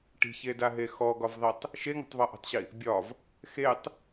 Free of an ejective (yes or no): yes